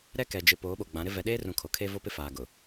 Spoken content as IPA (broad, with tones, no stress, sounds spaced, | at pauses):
ɾ ɛ˦ k ɛ˨ d͡ʒ ɪ˨ p oː˨˦ ɓ o˨ ɡ͡b ã˨˦ ɾ ɪ˦ v ɛ˨ ɗ eː˦ r ũ˨ kʰ o˨ kʰ e˦ v o˦ p ɪ˦ f aː˨ ɡ ʊ˨